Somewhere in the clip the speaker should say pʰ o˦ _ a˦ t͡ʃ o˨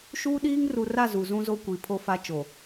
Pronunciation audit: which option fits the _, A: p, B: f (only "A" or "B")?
B